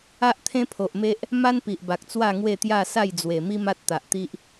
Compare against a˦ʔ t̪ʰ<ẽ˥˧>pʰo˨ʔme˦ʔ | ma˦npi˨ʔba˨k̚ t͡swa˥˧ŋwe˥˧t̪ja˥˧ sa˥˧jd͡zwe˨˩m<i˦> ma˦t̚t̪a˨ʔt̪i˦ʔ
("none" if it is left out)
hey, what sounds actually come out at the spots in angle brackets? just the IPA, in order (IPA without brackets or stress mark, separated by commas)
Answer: ẽ˦, i˦